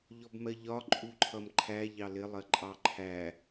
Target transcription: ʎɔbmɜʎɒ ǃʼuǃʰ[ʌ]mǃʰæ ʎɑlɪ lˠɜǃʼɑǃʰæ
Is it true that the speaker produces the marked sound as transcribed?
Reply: yes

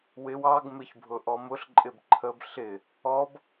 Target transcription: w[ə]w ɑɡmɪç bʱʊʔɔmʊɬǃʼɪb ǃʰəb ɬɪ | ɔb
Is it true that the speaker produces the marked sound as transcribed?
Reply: no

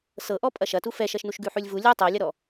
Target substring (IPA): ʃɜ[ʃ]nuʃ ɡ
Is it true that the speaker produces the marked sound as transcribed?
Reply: yes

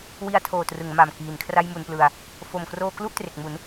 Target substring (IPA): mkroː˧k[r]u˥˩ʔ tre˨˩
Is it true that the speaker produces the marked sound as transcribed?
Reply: no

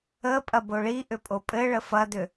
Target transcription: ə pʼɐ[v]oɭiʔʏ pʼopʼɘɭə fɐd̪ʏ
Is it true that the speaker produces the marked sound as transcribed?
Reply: no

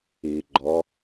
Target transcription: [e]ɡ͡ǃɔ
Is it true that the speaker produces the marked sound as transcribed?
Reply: no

